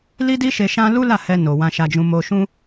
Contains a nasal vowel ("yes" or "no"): yes